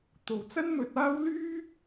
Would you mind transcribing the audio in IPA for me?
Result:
t̪ o˨ w t͡s ɐ˥ n m ɵ˧ t̚ aː˥ w l yː˥

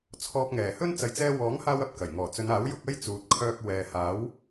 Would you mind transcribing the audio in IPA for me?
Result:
t͡sʰ ɔː˧ p̚ ŋ ɛː˨˩ h ɵ˥ n t͡s ɐ˨ j t͡s ɛː˧ w ɔː˨˥ ŋ h aː˥ w ɐ˨ p̚ k ɐ˨˩ j ŋ ɔː˨˩ t͡s ɵ˨˧ n aː˨˥ w j ʊ˨˥ k̚ ɐ˥ j t͡s uː˨ t̚ kʰ œː˧ k̚ w ɛː˨ h aː˨˥ w

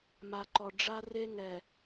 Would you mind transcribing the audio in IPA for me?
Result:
m a˨ ǃ ɔ˨ ɖ͡ʐ a˦ r e˦ ŋ ɛ˨

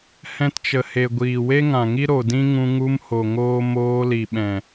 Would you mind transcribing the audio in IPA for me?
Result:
h ɛ̃˧ t t͡ʃ ə˨ h e˨ ɡʷ iː˨ w e˦ ŋ ã˨ ŋ i˦ ɾ o˨ d ĩ˦ ŋ ũ˧ ŋ u˧ m h o˨ ŋ oː˦ m oː˧ l i˨ ɓ ɛ̃˨

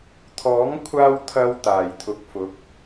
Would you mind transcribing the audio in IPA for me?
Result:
t̪ʰ ɔː˨˥ ŋ kʷʰ aː˧ w t̪ʰ ɐ˧ w t̪ aː˨˩ j t̪ʰ ʊ˨ k̚ f ʊ˨˥ k̚

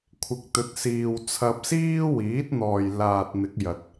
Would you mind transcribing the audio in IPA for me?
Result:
kʷʰ ɪ˨ k̚ t̪ ɵ˨˥ t̚ s iː˨ w t͡sʰ ɐ˧ p̚ s iː˥ w iː˨˥ t̚ n̪ ɔː˨ j l aː˨ t̚ n̪ ɪ˨˥ k̚ j ɐ˨ t̚

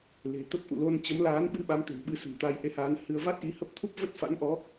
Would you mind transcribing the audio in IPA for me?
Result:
l e̤˨˩ t̪ ə˦˥ p̚ ʔ ṵ˧˨ l o˧ n t͡ɕ ə˨˦ m l aː˨˦ n ɓ ɨ˧ ɓ a˨˦ m t̪ e̤˨˩ n ɓ ɨ˧ s ə̤˨˩ n t̪ a˧ j ʔ e˨˦ h aː˨˦ n h ɨ˧ ə̯ v a˦˥ t̚ ʔ i˨˦ h ə˦˥ p̚ t̪ʰ u˦˥ p̚ v ə˦˥ t̚ f a̰˧˥ n ʔ ɔ˨˦

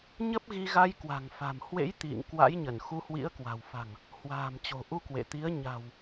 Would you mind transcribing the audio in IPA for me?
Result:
ɲ ə˦˥ p̚ ɣ i˧ ɣ a˧ j k w a̤˨˩ ŋ f a̤˨˩ m h w ḛ˧˥ j t̪ ḭ˧˨ ŋ k w a̰˧˥ j ɲ ə˧˩ n x u˧ h w ḭ˧˥ ə̯ k w a̤˨˩ w f a̤˨˩ ŋ | h w a̤ː˨˩ m t͡ɕ o̤˨˩ ʔ u˧ k w ḛ˧˨ t̪ i˨˦ ə̯ ɲ a̤˨˩ w

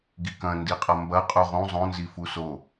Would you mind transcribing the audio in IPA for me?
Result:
ɡ i k ɐ̃ n d i qʼ ɐ m b ɐ qʼ u ʁ ũ zˤ õ n z i f u s o

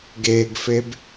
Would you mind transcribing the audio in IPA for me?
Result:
ɡ e ɡ f e b

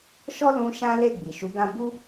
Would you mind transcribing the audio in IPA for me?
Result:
ʃ ɔ˦ l ũ˧ ʃ ã˦ l e˦˨ ɡ͡b i˨ ʃ u˨˦ ɡ ã˦ b u˦

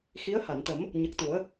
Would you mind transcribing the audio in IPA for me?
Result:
x i˧˥ ə̯ h a˨˩˨ n t̪ ə˨˩˦ m | ɲ ə˨˩ k̚ t̪ u˨˩˦ ə̯

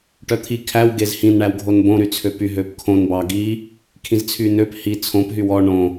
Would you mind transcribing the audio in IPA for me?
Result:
ʈ œ t̪ʰ i kʰ æ w ɡ e z h ĩ n ɳ æ w ɡʱ o n b õ ɾ y t͡sʰ ø p y ɦ ø p kʰ õ n b ɑ ɡ i | kʰ ĩ z t͡sʰ y n ø p h i t͡sʰ õ p ɦ y w ɔ ɳ õ

